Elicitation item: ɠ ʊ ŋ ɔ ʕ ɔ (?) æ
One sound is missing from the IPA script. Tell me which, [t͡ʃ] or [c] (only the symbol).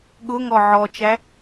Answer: t͡ʃ